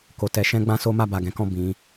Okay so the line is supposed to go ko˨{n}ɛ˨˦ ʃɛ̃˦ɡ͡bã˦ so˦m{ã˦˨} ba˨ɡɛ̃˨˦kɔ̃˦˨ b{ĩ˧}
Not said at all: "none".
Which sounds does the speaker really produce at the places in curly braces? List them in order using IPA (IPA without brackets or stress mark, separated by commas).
t, a˦˨, ĩ˨˦